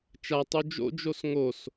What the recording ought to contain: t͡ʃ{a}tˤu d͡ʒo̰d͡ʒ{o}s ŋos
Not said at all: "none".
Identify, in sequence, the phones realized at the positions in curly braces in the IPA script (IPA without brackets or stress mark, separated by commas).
a, o